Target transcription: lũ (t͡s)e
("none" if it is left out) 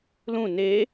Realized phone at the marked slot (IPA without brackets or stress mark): n